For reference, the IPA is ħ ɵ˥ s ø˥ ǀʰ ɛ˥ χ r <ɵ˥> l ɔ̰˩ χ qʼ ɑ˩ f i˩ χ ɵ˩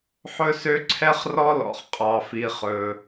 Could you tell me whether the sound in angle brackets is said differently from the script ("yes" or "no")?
yes